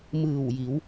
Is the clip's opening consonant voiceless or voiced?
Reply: voiced